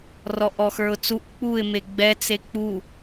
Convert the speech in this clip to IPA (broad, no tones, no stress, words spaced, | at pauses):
rɔʔɔxə˞ʊ̯t͡suʔ k͡puɪ̯ meɡ͡bɛ t͡sek͡pu